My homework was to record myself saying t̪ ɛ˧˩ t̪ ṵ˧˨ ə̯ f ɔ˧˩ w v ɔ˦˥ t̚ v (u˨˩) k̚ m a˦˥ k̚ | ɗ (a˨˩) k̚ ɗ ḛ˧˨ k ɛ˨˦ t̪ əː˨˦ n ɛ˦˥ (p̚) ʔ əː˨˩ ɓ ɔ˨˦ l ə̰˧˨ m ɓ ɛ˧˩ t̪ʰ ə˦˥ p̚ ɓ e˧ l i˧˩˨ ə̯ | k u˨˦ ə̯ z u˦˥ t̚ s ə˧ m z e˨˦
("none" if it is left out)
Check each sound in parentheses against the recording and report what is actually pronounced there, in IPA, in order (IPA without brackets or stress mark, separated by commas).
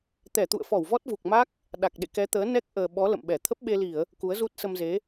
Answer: u˨˩, a˨˩, k̚